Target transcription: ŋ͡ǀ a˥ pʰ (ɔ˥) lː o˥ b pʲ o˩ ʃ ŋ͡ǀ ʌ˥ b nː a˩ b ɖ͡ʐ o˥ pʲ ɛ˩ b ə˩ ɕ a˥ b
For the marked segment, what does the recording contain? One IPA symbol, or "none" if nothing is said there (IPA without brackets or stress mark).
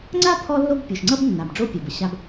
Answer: ɔ˥